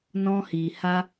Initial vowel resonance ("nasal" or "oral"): nasal